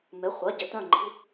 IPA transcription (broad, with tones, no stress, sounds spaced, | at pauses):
m ɪ˩˧˩ χʷ ɐ˩˧˩ ɟ ɪ˩˧˩ t œ̃˧˩ ŋ͡ǃ i̤˩˧˩